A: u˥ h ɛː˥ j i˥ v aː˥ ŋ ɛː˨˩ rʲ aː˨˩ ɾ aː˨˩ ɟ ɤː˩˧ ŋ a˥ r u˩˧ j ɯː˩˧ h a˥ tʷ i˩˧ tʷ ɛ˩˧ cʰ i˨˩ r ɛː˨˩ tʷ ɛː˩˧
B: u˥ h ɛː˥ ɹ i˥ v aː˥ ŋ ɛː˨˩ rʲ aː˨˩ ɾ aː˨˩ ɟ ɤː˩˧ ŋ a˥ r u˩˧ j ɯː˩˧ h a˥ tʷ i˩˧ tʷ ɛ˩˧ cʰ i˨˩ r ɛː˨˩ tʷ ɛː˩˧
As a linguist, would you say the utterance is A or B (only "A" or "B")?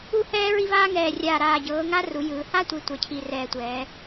B